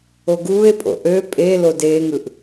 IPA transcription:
o ɡ uː e̯ pʼ o̰ ʔ ø pʼ e l o d eː ŋ ɯ ʔ

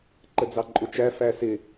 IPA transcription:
ǃ ə d͡z ɑ ǃʼ ʊ t͡ʃ æ f æ s ɪ

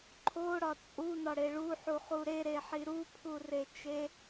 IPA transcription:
ǃʰ o ɽ ɒ t͡sʼ u n ɒ ɽ e ɭ u ħ u χ u ɾ e ɾ e ħ i ɾ u pʰ u r e t͡ʃ e

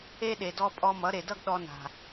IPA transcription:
e˦ ɗ e˨ d ɔ˧ pʼ ɔ˧ m ʌ˨˦ ɾ e˨ d ʌ˦ ɡ ɗ ɔ˧ n a̤˨

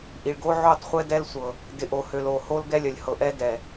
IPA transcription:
ʔ i˨ ɭ ɡ o˦ ʕ o˦˨ tˤ χʷ ɛ˦ d ɛ˦ l sʷ ɤ˨ | d ɪ˨ ʔ o˨ h ø˨ l o˨ h o˦ l ɡ ɛ˦ lʲ œ˨ lʲ h ɤ˨ ʔ ɛ˦ d ɛ˨

